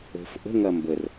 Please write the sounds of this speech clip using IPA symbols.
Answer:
ə̤ f ʔ ə̤ ŋ ɐ m b ə r

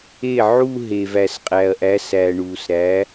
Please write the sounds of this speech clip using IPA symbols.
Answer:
e˥˩ ʕ u˥˧ ɦ e˨ v æ˨ s qʼ æ˨ ɐ̯ ʔ æ˨˥ s æ˨ ɳ uː˨ s ɾ æ˨˥

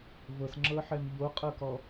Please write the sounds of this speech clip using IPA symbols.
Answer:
v ɤ s ŋ͡ǁ ɤ ħ ɛ m ʎ o qʼ ɤ k ɔ

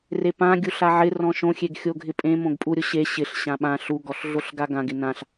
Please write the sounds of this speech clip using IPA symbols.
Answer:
r e p ã ɡʲ u ɬ a ʕ ɪ r ɔ̃ ʃ õ xʲ e ɡ xʲ o ɡʱ ɪ pʼ ẽ m õ ɡ pʼ u ɾʲ ʊ ɕ e ɕ ɪ ɬ ɕ ã ɓ ã ɬ u ɡ ɔ ɬ ɮ o ɬ ɡ a ɡ ã ɡ ɪ n ã ɬ

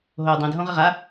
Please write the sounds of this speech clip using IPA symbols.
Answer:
ɦ o dˤ õ d ɦ õ ʁ ə ʁ a

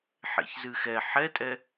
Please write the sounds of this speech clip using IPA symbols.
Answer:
ħ ḛ ç z ɨ x ɛ ħ ɛ tʼ ɛ

